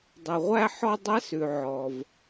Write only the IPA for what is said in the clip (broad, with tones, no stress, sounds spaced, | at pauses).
dˤ ɛ˩ ʁʷ æ˧ ħ ɔ˧ dˤ æ˧˥ s ʉ˩ ʕ ɔ˩ v